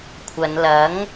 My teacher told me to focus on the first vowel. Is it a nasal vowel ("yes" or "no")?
no